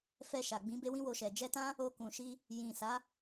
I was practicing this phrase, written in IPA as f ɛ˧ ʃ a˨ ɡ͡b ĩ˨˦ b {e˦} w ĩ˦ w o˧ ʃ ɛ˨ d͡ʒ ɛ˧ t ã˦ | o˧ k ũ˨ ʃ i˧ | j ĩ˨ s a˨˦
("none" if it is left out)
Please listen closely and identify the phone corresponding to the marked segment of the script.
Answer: e˦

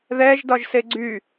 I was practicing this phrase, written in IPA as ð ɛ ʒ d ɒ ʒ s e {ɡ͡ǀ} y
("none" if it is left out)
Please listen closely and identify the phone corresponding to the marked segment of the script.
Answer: ɡ͡ǀ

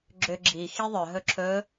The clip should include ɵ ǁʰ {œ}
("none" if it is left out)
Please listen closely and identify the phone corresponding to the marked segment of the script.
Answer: ɵ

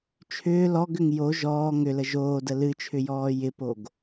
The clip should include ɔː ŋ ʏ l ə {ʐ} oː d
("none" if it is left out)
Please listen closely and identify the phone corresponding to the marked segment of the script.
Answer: ʒ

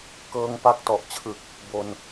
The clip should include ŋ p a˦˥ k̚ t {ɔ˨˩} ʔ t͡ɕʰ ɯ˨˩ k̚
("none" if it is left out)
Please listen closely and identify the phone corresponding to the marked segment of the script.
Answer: ɔ˨˩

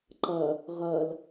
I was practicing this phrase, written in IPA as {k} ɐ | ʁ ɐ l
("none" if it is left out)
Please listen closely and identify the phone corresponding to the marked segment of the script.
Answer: ǃ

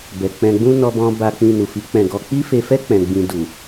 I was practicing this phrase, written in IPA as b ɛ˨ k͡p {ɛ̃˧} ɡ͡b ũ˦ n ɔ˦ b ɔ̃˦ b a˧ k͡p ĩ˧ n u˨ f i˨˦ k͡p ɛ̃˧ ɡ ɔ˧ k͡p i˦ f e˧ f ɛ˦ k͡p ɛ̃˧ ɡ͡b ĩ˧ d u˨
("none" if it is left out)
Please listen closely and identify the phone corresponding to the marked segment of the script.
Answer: ɛ̃˧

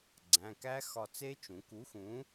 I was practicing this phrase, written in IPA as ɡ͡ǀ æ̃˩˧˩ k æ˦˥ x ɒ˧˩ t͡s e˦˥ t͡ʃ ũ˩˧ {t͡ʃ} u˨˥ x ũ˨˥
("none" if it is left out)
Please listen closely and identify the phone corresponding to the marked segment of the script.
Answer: k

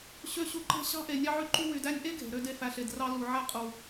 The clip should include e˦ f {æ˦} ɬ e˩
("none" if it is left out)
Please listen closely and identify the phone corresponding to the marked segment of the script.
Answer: æ˨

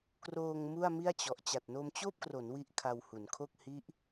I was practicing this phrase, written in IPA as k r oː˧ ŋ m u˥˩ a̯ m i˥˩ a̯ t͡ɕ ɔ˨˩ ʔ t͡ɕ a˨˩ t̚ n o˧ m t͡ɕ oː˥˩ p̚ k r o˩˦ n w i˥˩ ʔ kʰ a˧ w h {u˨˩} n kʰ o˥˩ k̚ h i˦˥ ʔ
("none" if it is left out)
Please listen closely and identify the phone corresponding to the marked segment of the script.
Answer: u˩˦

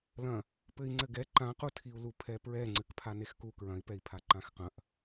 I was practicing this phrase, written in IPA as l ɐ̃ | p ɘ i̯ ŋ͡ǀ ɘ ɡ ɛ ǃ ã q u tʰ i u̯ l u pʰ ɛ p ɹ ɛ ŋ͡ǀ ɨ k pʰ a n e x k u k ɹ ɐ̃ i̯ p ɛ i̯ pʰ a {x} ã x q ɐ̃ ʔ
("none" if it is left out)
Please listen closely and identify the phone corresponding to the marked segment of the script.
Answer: ǃ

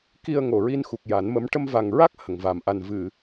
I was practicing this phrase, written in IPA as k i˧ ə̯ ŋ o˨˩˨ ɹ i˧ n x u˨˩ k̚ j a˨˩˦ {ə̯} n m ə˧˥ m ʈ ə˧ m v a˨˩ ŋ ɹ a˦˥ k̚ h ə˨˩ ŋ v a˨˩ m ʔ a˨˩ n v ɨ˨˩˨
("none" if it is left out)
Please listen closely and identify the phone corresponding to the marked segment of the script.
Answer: none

